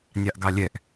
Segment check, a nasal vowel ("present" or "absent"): absent